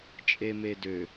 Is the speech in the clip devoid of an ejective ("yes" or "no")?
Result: no